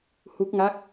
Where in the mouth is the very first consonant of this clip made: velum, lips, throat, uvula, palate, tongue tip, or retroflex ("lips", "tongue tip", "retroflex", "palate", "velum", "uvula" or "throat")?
throat